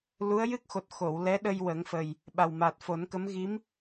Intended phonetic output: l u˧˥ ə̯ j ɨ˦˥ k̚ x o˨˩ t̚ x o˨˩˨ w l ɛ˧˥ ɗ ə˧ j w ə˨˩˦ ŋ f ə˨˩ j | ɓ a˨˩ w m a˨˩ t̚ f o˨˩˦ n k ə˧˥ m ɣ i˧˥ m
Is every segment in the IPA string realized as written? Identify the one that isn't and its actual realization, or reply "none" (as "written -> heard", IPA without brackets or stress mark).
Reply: none